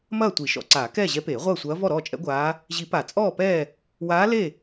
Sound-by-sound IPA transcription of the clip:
m ɐː˥˨ tʷ i˨˩˦ ʃ ɔ̰˨˩˦ ǀ aː˨˩˦ k ɛː˥˨ ʑ ɛ˧˥ p eː˨˩˦ ʁʷ ɐː˥˨ sʷ ɐː˧˥ v ɔ˥˨ ɾ ɔː˥˨ t͡ʃʼ ɛ̰˧˥ ɡʷ aː˧˥ | ʑ i˨˩˦ p a˨˩˦ t͡sʼ ɔː˥˨ p ɛː˥˨ | w aː˧˥ l e˥˨

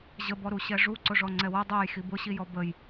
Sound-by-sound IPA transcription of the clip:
ʑ ə b ɔ ɾ u ɕ ɛ ʐ u ǀ ʊ ʐ ɔ ŋ͡ǀ ɛ w ʊ dˤ ɛ j x i b ʊ ɕ i j ɔ b ə j

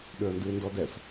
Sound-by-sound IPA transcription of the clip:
ɗ ø ə̯ n d ɨ ɪ̯ n d ɔ d ɛ f

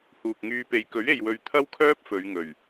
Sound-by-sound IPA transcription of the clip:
h uː˨ k̚ ŋ yː˧ p e˨˧ j k ɵ˨˥ ɥ e˨ j w ɵ˨˧ ɥ t̪ʰ ɐ˥ w kʰ œː˥ p̚ f ɵ˨˧ ɥ ŋ ɵ˨˩ ɥ

